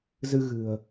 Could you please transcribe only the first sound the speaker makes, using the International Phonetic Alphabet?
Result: z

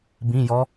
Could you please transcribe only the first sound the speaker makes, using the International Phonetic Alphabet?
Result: b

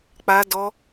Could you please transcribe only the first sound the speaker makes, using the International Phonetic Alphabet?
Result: k͡p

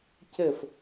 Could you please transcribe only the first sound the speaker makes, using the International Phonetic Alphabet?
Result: c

